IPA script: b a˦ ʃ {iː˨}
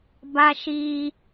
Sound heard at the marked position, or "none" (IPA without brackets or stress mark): iː˦